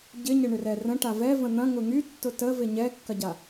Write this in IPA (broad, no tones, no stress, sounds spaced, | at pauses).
ɟ ɪ ɲ ə ɳ ʏ r ɛ r ə̃ ʈ a v ɛ v ə̃ n̪ ɐ̃ ŋ ʊ ŋ y tː ʊ t ə v ɪ ɲ ɛ kː ɐ ɟ a